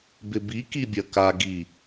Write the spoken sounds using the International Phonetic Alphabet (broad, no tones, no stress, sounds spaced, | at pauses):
b ɪ b i k i bʲ ɐ k a ɡ i